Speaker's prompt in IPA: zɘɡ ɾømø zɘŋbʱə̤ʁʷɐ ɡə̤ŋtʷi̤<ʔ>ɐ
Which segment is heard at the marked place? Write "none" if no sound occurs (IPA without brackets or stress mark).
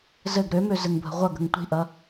ʔ